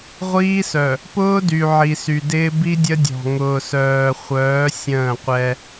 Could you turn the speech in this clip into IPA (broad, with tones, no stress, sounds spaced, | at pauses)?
ʁʷ iː˦ s œ˨ | p ʊː˦ d y˨ ʕ i˨ s y˨ d ɪː˦ b i˦ dʲ ə˦ dʲ ɔ̤˨ ŋ ʊː˨ s œː˨ χʷ œː˨˦ sʲ ə̃ː˦˨ qʷ ɛ˦